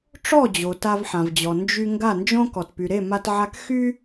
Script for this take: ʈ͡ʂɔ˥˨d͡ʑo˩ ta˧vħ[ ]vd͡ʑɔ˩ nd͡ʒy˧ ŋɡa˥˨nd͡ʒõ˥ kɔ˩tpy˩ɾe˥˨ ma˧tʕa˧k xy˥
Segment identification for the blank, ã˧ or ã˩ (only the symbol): ã˩